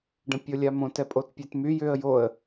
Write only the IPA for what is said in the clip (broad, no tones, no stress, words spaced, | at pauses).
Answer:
ɖə̃pʲolʲamõt ɛpʼotpʲɛtmy jʏə̯ joə̯